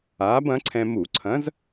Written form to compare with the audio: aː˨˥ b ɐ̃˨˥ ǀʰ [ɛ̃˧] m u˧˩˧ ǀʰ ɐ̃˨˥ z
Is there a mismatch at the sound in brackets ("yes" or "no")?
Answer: no